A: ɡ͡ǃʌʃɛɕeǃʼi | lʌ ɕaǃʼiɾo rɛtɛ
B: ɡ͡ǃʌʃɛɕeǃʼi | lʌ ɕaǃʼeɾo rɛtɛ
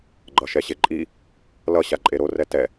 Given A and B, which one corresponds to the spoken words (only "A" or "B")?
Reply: B